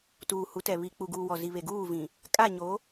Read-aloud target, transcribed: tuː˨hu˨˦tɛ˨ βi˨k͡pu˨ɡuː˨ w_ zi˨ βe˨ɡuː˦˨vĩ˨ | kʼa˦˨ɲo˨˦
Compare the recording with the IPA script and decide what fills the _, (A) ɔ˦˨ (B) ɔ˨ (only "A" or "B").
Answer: B